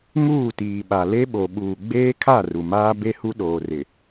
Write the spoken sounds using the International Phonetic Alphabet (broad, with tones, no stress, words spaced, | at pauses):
ŋuː˦˨tiː˨ɓa˨ le˦ɓo˨ ɓuː˨ɡ͡beː˦kʰa˦˨ ru˨maː˦ be˦ hu˦ɗoː˨rɪ˨